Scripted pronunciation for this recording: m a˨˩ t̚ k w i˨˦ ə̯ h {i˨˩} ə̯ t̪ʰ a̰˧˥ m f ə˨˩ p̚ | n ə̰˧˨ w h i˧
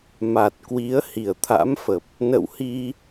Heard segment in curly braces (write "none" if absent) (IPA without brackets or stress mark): i˨˩